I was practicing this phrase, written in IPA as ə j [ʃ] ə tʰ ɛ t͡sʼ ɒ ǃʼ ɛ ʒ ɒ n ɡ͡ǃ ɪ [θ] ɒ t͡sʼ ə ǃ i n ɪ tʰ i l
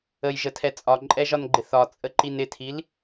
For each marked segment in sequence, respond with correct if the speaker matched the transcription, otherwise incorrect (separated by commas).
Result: incorrect, correct